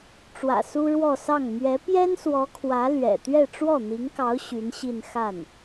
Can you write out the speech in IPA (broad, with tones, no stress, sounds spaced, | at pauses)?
ʈ͡ʂ w ä̰˨˩ s u˥ ɻ w ɔ˥˧ s ɑ˥˩ ŋ m ɥ ɛ˧˥ p j ɛ˥ n s w ɔ˧˥ kʰ w ä˧˥ l ɥ ɛ̰˨˩ t̪ ɥ ɛ˥˧ ʈ͡ʂ w ɔ˥˩ n̪ i˧˥ ŋ k ɑ˧˥ ʊ̯ ɕ y˧˥ n ɕ i˥˧ n x a˥˩ n